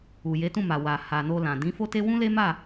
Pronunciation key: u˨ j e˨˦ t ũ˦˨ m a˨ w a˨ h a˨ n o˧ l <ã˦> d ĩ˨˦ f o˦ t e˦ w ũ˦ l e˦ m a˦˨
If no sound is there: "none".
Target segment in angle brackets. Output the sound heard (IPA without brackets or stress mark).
ã˨